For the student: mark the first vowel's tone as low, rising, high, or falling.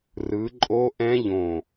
rising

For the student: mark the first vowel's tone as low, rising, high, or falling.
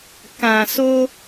low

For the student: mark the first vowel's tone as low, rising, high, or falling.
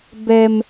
high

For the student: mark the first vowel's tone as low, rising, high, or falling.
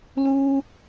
high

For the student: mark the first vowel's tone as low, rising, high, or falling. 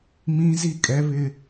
high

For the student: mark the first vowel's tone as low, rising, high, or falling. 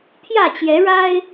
falling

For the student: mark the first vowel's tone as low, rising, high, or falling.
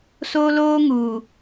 high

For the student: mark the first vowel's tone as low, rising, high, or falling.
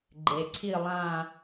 low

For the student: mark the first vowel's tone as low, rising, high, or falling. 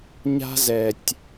high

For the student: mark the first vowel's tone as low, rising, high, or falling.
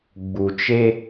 low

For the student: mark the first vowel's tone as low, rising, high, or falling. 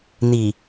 low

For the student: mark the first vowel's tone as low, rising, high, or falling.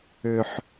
low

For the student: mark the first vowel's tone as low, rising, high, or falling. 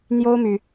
high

